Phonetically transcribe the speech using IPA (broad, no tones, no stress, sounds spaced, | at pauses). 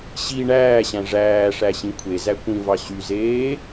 ɕ i ɳ æː ɕ æ̃ ʐ æː ʂ æ ɕ ĩ kʷʰ e z æ kʷ ĩ v ɑ ɕ y z eː